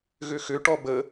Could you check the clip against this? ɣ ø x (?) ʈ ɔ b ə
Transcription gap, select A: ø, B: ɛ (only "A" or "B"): A